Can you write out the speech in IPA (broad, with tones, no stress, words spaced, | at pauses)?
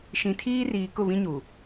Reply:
ʃĩ˨tʰiː˦riː˨ kʊ˦˨βĩ˦ɲu˨